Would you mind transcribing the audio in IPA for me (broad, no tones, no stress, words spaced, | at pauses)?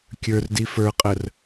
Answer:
kʲə˞rdi fə˞qʼər